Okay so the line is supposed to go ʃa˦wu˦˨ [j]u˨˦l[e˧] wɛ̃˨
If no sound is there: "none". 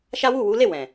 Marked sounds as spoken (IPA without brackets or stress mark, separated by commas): w, e˦˨